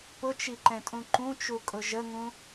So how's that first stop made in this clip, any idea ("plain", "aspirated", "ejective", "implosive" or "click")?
plain